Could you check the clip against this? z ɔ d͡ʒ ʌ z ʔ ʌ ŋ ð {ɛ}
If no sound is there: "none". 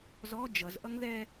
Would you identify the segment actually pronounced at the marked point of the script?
ɛ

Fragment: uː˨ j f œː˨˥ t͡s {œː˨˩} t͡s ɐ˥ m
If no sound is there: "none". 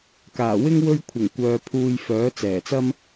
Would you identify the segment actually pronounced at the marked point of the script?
ɛː˨˩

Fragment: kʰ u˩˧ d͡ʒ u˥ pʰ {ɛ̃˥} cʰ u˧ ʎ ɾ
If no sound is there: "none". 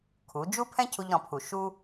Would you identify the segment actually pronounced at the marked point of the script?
ɛ̃˥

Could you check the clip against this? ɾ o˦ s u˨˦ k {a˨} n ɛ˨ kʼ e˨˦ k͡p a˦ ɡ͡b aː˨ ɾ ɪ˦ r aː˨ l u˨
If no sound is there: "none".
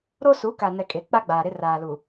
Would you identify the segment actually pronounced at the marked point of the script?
a˨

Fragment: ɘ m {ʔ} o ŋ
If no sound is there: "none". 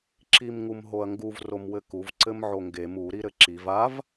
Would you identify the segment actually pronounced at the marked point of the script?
ʕ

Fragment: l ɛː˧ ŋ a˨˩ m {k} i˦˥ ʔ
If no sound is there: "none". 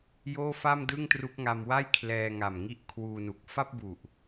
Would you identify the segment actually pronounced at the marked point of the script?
ŋ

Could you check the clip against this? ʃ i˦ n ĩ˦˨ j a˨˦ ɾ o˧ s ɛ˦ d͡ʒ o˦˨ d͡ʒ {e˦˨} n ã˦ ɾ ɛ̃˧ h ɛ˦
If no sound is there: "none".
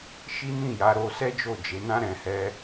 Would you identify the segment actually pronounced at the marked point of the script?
e˨˦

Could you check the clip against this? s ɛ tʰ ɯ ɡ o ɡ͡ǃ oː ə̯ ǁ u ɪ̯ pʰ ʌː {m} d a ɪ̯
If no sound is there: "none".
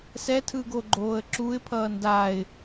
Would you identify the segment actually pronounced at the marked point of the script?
n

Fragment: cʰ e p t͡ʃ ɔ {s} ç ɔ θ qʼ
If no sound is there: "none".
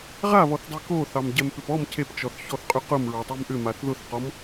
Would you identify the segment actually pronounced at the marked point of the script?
θ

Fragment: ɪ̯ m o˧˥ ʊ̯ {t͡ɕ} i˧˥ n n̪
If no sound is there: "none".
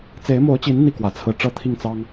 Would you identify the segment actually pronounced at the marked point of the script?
t͡ɕ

